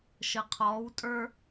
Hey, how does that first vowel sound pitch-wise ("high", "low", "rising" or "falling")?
low